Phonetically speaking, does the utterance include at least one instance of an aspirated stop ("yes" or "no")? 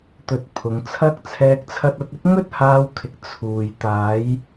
yes